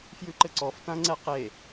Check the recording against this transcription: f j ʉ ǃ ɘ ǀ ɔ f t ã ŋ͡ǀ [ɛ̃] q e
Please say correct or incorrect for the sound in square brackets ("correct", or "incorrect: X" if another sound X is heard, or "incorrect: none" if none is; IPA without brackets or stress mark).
incorrect: ɛ